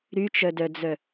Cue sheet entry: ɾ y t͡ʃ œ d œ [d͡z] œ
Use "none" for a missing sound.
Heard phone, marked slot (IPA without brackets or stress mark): d͡z